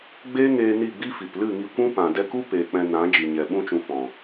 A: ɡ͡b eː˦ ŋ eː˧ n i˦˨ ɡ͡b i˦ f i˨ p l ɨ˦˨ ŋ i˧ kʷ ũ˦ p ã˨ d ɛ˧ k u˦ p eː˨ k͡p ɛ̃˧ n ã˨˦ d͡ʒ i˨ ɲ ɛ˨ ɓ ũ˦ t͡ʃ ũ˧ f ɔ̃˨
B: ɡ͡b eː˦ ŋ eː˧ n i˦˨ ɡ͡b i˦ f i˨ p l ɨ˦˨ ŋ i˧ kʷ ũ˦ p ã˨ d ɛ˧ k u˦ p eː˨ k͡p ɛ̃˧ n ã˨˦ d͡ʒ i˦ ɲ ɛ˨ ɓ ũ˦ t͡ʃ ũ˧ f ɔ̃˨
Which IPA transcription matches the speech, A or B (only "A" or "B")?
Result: A